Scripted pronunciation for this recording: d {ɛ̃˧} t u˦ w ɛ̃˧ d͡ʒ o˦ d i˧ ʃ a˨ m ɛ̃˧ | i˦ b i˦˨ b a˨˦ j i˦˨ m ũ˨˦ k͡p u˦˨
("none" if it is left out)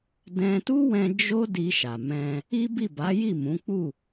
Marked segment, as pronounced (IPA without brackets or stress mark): ɛ̃˧